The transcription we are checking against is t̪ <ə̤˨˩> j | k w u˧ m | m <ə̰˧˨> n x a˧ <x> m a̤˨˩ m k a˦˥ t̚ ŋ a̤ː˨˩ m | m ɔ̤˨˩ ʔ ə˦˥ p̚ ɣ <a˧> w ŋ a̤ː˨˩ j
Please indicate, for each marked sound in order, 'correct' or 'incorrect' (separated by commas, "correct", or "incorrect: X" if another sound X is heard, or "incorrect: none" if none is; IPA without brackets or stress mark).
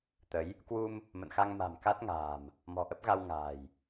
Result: incorrect: ə˨˦, correct, incorrect: ŋ, correct